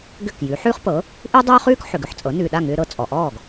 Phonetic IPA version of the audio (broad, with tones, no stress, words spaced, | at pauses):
ɡʏ˥˩kjʉ˩˥ ħʉː˥χpɤ˩˥ | ʔʉ˥ dˤøː˥χʉː˥k ħʏ˩ɡʏ˥˩ħt͡sʼɤ˩˥ nʉː˩ɗa˥˩ŋʏː˧ ɾɤ˧t͡sʼɔ˩ʔɔː˥˩ɡ